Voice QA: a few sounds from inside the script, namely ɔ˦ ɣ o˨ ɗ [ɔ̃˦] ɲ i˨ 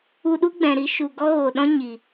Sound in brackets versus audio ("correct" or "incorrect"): correct